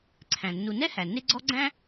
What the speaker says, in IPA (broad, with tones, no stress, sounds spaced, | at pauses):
ǀʰ æ̃˩ nː u˨ n ɛ˥ h æ˩ n e˦ ɡ͡ǀ ɔ˦ ɡ͡ǀ æ̃˥